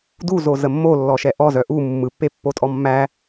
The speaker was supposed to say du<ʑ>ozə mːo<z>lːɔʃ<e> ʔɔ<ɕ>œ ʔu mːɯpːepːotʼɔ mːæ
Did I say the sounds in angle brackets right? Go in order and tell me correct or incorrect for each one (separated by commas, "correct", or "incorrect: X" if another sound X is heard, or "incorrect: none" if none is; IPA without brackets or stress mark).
incorrect: z, incorrect: none, incorrect: ɛ, incorrect: z